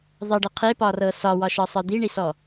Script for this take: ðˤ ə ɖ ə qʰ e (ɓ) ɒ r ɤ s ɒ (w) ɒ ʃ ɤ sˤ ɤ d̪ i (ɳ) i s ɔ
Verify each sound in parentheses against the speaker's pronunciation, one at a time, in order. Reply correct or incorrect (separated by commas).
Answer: incorrect, correct, correct